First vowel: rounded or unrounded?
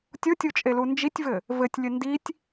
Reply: rounded